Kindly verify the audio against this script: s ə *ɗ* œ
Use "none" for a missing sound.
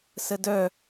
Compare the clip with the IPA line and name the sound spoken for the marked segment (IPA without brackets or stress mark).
d